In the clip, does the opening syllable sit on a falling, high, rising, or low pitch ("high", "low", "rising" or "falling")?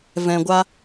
low